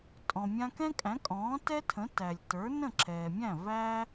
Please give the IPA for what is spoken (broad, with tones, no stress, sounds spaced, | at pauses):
tʼ ɔ̃˩ mʲ ã˧ k ɛ̃˥ kʼ æ̃˩˥ kʼ ɔ̃ː˩˥ t ɛ˥ tʰ ə̃˩˥ t æ˩ lʲ t ə˞˩˥ n ə̃˥˩ ǁʰ ɛː˩ mʲ æ̃˥˩ v æ˥